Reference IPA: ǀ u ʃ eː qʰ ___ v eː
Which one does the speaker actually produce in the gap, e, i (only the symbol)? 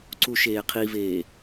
i